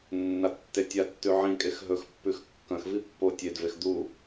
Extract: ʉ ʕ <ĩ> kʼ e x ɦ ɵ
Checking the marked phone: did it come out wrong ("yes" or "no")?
no